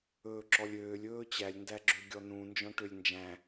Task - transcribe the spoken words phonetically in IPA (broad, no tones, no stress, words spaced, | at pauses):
ɵːǁɔlʲøːlʲ ɵːt͡ɕælʲ ndæɡ͡ǁøɡʲɔnũ nd͡ʒɔ̃ʈølʲnd͡ʒæ̃